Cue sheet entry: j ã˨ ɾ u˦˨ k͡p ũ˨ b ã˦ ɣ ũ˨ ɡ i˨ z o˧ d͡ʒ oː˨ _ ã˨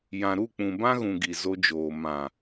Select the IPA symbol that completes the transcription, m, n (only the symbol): m